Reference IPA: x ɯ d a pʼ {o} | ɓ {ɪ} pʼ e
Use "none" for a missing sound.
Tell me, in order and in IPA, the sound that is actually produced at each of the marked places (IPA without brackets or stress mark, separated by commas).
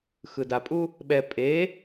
u, ɛ